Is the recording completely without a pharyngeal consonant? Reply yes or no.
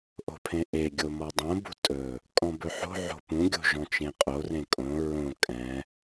no